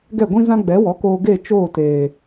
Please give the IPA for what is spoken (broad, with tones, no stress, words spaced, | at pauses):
ɡɛ˦˨ɡʷĩ˦ zã˦ɡ͡bɛ˨˦wɔ˨˦koː˧ ɡe˦˨ t͡ʃoː˦˨teː˨